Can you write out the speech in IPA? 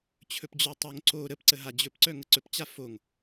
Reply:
t͡ɕʰ ɵ p d͡ʑ œ tˤ o ŋ ǀ o ɾ ə p ǀ ə ɦ a d͡ʑ ɵ p ǀ œ ŋ ə ǀ ɵ p t͡ɕ a f o ŋ

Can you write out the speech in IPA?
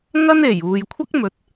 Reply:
ŋ ɐ˥ n e˨˩ j uː˨ j kʷʰ ɐ˥ k̚ m ɵ˨˥ t̚

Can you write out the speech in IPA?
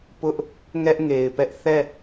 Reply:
p ʊ˦ ʔ | ŋ ɛ˦ ʔ ŋ e˨ ɪ̯ p ɛ˦ ʔ θ ɛ˦˨

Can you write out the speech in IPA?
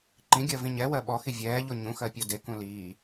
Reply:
ǃ ĩ ɡʲ ɜ v ĩ ɲ ɛ w ɜ ɓ ɔ x i vʲ ɛː ʎ o ɲ ũ x ɜ pʲ o d e k ũ l iː

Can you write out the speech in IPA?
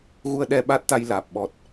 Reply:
ɣ u˧ ə̯ ɗ ɛ˧ ɓ aː˦˥ t̚ t̪ a˧ j l aː˨˩ p̚ ɓ ɔ˨˩ t̚

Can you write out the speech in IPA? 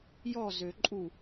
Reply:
j ɔ z ø ǃʼ u

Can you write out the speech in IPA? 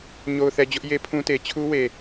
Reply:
ɲ o˨ ʊ̯ θ ɛ˨ d͡ʑ ʊ˦ ʔ j e˦ pʰ ũ˦ t e˨ t͡ɕʰ u˦ w e˨

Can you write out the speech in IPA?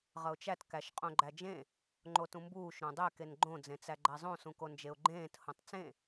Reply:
ʁ ʌ ʊ̯ t͡ʃ æ t k æ ʃ qʼ õ ɡ͡ǃ æ d͡ʒ ẽ | ŋ͡ǃ o t ũ m b uː ʃ ɾ õ dˤ e k e n ɡ͡ǃ õ d͡z ẽ t͡s æ ɡ͡ǃ æ zˤ õ s ũ k o n d͡ʒ e ʊ̯ ɡ͡ǃ ẽː t h õ tˤ t͡s ẽ

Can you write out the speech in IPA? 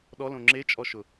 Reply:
ɗ ɔ l õ ŋ͡ǁ e t͡ʃʼ ɔ ʃ ʊ

